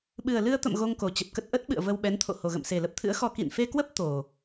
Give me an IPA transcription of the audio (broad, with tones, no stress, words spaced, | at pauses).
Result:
ɓɨ˨˩ə̯lɨ˧ə̯t̪ə̰˧˨m ɣo˧ŋko˨˩t͡ɕə˨˩p̚kə˦˥t̚ ʔə˦˥t̚ɓɨ̰˧˨ə̯ və˧wɓɛ˨˦nt̪ʰo̰˧˨ ho˨˩ɣə̰˧˨mse˨˩lə˦˥p̚ t̪ʰɨ̰˧˥ə̯xɔ˧ kḭ˧˨nfe˧kwə˦˥p̚ t̪o˨˩